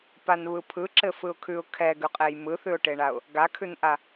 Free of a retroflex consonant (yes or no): no